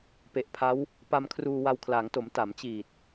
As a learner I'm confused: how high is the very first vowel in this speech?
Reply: mid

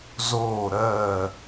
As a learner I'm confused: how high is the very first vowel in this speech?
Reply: mid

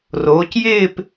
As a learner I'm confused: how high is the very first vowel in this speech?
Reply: mid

